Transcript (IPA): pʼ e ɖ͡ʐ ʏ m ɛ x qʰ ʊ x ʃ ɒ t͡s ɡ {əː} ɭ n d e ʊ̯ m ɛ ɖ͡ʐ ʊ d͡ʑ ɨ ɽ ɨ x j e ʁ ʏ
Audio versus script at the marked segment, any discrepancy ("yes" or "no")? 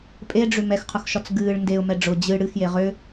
yes